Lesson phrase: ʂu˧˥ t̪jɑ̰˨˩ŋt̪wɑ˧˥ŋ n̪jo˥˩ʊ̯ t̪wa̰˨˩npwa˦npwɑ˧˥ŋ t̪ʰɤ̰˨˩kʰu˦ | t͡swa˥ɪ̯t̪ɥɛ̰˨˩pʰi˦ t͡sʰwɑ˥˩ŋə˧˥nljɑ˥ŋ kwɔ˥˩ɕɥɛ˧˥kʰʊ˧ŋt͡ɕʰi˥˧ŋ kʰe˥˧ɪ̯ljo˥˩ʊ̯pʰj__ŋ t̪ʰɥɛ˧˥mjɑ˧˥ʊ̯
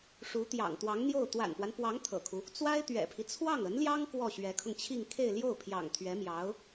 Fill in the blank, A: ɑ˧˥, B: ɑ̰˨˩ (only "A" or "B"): B